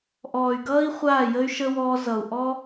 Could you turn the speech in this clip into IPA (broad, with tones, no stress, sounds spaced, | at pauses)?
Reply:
ʔ ɔː˨ y̯ ɡ ʌː˦ i̯ χʷ aː˦˨ j ə˦ y̯ ʃ ə˦ w ɔː˧ z ʌ˨ u̯ ʔ ɔ˦